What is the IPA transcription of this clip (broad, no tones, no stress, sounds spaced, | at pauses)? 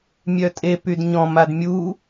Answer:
mʲ œ tʼ e p y d ɲ ɔ̃ m a d mʲ u